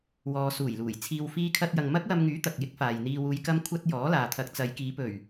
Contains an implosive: no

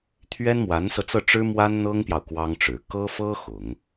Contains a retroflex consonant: yes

